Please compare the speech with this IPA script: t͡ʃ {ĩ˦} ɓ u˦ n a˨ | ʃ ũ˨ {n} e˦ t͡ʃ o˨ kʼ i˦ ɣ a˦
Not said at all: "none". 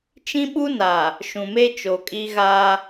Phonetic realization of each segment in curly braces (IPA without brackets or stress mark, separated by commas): ĩ˦, m